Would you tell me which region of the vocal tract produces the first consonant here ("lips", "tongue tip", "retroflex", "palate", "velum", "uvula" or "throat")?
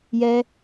palate